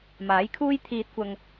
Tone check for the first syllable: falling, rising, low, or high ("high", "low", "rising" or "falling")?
rising